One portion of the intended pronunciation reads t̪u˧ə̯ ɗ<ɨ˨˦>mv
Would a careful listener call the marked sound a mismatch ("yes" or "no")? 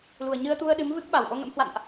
no